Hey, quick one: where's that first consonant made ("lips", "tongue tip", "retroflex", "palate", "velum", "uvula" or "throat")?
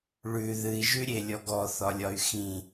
retroflex